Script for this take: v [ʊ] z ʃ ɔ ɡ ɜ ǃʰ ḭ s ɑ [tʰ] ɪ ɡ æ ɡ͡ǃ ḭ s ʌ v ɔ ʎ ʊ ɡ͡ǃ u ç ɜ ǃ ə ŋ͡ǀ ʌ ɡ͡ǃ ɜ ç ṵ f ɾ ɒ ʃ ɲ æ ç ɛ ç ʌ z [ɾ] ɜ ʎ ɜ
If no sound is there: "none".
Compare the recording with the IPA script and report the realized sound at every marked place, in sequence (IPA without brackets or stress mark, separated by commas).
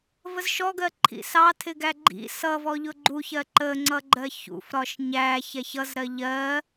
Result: ə, tʰ, ɾ